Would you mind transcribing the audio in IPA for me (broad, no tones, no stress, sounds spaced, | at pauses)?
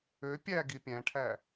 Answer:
ø pʲ æ ɡ i pʲ æ̃ ʈʰ æ